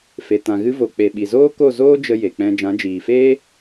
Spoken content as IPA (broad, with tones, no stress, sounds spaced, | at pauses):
f e˨ t ã˨ ɣ ɨ˧ v o˨ k͡p e˨ ɓ i˨ z oː˦ k o˦˨ z oː˦ d͡ʒ ə˧ j e˨ k͡p ɛ̃˧ d͡ʒ ã˨˦ d͡ʒ iː˨ f eː˦